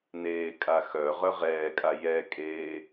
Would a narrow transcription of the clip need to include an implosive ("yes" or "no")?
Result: no